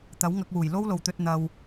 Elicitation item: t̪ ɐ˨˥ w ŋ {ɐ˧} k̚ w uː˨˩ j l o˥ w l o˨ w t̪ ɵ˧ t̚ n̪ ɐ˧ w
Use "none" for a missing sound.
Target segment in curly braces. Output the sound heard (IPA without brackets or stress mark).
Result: ɐ˧